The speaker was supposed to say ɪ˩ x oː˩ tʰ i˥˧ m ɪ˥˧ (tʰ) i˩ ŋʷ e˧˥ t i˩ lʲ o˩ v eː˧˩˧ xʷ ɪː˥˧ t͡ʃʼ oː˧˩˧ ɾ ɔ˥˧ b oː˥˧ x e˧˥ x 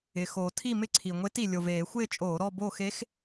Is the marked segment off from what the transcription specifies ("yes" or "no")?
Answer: yes